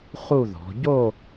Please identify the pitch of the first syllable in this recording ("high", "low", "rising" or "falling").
falling